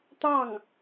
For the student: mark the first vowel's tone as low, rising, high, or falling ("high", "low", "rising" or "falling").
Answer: falling